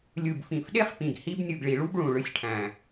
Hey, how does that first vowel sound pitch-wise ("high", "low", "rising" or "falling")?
low